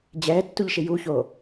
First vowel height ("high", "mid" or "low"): mid